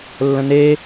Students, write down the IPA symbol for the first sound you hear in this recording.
lː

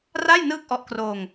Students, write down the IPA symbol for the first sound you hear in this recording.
r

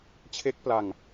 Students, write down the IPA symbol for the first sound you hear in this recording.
t͡ɕʰ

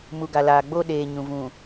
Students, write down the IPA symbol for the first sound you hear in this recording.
m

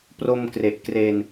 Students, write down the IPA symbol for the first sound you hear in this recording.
p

